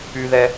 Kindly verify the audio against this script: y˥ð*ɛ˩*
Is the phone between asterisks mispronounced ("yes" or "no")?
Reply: yes